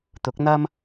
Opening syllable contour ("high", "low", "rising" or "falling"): rising